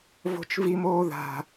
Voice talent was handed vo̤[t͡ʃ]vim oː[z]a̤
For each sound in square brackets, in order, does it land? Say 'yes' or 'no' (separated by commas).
yes, no